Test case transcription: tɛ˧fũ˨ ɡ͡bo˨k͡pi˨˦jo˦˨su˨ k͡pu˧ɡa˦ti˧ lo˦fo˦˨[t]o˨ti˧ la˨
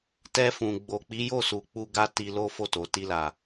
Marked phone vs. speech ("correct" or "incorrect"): correct